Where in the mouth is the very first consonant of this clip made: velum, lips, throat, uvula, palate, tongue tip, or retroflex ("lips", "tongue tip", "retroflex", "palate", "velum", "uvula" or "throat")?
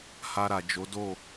throat